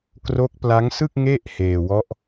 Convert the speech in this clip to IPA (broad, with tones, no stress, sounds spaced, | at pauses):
k r o˦˥ k̚ p l a˦˥ ŋ s ɯ˥˩ k̚ ŋ e˥˩ ʔ h eː˧ w ɔ˦˥ ʔ